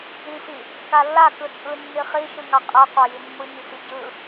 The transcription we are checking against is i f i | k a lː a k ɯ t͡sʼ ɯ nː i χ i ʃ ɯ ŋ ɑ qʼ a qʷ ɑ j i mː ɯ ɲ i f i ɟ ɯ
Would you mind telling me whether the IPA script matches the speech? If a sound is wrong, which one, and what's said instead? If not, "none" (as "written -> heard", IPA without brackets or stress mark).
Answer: none